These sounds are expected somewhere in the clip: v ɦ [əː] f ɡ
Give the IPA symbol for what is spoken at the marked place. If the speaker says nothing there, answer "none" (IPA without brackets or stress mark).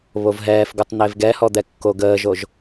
ɛː